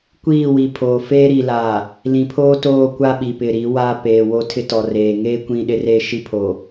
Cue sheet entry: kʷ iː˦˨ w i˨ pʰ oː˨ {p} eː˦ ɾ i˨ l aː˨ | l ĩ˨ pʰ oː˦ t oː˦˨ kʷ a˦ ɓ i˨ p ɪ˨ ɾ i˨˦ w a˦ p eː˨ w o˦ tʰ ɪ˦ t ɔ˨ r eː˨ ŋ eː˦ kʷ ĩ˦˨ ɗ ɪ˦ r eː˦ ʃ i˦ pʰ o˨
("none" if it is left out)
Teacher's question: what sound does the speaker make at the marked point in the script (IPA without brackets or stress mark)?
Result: f